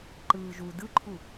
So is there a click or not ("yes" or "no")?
yes